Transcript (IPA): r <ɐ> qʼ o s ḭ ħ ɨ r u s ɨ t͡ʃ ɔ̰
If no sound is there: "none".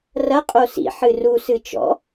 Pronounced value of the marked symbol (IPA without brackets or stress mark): ɐ